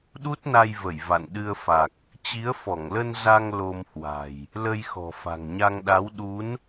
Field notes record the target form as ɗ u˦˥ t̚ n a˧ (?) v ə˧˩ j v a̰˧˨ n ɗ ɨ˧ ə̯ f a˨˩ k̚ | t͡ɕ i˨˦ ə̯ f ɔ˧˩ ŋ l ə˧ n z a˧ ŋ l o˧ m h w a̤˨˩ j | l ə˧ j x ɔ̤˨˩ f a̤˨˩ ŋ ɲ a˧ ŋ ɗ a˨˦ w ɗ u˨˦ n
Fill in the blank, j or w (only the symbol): j